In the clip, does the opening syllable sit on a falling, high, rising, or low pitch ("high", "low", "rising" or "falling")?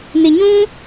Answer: low